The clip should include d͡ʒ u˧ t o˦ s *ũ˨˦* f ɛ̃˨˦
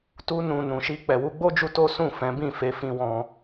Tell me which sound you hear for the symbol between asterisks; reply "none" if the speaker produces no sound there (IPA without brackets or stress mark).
ũ˦˨